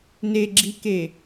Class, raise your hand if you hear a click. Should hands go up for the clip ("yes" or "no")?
yes